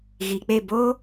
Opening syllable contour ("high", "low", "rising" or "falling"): low